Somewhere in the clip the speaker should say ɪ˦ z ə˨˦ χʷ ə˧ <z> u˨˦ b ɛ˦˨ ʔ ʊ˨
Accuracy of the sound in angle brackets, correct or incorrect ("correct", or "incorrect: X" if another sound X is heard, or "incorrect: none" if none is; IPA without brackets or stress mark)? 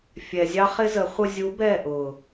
incorrect: zʲ